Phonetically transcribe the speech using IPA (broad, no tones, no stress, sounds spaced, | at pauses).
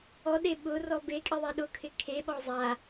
ɔ ɗ e ɓ ʊ r ɔ b e kʼ ɪ ðˤ e ɗ ʊ kʰ ɪ kʰ e ɓ ɔ zˤ a